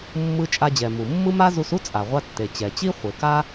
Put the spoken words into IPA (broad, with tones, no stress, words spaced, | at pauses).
mːɯ˧t͡ʃʼa˧d͡ʑɛ˩ mu˩ mːɯ˥ma˥ zu˧su˥ t͡sʼa˩ʁʷa˧tːe˩ t͡ɕɛ˩t͡ɕi˥ χʷe˩ka˥